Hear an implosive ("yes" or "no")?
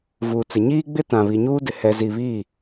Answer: no